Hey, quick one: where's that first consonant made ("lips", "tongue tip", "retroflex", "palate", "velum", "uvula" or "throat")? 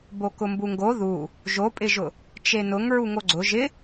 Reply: lips